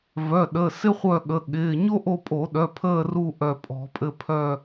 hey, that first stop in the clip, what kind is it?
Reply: implosive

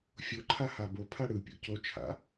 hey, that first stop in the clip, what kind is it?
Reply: click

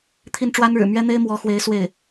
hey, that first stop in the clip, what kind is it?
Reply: aspirated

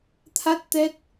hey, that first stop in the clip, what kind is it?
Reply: aspirated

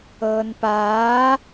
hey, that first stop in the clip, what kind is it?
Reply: plain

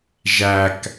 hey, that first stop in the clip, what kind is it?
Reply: plain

